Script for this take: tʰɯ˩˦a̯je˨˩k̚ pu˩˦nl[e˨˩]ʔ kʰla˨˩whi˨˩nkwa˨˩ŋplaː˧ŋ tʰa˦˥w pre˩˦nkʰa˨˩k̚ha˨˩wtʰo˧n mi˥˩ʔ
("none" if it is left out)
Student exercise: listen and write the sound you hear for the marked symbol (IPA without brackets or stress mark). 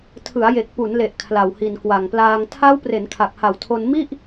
e˨˩